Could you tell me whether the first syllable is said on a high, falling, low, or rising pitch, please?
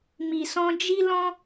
low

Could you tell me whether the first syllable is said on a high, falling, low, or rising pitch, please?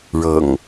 low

